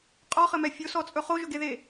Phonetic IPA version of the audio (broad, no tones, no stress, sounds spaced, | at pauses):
qʼ ɔ χ ɘ m ɛ fʲ o s ɔ t͡sʼ ɵ χ o ʒ ɵ ɡ e ð e